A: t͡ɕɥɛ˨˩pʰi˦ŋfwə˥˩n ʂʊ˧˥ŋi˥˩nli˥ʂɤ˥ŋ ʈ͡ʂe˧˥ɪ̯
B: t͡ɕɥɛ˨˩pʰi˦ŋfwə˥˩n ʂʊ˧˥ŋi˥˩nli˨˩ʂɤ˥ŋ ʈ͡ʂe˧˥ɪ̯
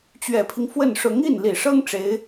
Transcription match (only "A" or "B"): B